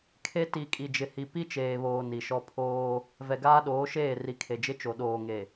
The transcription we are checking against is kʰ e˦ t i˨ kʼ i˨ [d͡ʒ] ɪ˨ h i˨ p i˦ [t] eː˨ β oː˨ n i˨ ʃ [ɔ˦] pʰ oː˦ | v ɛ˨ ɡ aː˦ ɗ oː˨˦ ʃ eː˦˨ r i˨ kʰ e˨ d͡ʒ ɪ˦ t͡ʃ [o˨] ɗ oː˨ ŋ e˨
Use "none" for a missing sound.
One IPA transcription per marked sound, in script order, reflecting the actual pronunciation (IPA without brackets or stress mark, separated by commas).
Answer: d͡ʒ, t͡ʃ, ɔ˦, o˨